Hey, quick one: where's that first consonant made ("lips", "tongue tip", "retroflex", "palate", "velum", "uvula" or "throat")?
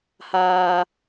throat